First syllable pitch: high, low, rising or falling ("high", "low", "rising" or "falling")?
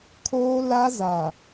high